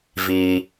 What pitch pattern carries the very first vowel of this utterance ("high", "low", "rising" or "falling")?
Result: low